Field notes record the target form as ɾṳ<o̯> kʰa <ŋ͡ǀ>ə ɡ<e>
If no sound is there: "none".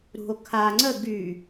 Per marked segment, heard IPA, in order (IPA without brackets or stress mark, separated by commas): o̯, ŋ͡ǀ, y